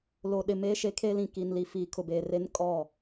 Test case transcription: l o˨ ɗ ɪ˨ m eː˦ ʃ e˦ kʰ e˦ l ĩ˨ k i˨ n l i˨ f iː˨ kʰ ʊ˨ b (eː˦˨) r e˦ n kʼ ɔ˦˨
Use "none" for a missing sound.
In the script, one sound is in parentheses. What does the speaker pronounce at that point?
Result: eː˨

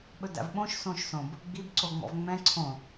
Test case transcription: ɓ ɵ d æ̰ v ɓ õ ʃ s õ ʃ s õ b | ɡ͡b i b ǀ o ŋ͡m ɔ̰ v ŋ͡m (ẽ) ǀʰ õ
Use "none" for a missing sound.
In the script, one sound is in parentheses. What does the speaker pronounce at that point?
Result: ɛ̃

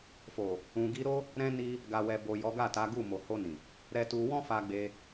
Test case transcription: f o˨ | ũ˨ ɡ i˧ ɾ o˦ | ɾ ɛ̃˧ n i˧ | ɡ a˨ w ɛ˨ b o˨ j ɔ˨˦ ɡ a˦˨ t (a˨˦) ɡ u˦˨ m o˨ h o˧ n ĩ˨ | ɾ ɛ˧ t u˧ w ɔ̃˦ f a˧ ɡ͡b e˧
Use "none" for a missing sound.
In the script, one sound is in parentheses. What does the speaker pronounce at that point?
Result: a˨˦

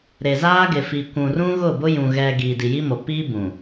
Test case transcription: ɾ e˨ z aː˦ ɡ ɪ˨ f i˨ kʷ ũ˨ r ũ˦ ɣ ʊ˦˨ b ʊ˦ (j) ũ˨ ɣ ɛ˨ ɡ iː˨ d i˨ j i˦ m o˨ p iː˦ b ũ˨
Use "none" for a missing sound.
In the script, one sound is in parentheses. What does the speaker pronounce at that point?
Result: j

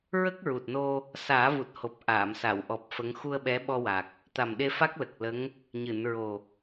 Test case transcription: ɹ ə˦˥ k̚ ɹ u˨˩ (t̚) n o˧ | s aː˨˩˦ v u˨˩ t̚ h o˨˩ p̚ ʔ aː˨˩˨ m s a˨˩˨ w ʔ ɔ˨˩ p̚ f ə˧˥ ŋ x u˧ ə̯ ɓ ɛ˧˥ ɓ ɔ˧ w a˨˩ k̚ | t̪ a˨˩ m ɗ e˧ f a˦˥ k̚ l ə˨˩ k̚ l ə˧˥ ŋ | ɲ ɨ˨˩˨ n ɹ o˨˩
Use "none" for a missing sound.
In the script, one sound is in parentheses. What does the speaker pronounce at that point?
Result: t̚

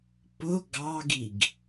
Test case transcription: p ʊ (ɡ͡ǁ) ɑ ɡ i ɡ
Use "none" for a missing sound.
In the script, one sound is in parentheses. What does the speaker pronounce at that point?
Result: ɡ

